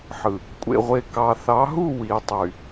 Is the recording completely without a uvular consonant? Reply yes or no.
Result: no